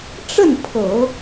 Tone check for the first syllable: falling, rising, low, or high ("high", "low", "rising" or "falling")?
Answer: falling